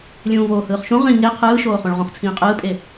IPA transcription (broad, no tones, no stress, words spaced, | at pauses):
lʲũːvoːhɯːχʃũ ʁĩ ŋe qʰɯːʃoːχõɭ ʁõχt͡sʰĩːqʼɯːpʼe